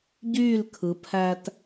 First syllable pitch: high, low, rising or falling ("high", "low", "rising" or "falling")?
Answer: falling